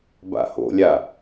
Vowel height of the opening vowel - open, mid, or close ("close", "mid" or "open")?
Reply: open